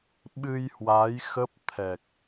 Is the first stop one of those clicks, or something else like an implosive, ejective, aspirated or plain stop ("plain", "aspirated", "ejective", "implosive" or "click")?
implosive